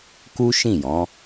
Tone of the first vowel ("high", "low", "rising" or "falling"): high